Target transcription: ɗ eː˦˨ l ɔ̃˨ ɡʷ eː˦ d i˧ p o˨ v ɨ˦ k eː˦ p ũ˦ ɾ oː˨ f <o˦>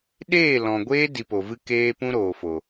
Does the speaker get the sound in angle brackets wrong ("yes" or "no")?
yes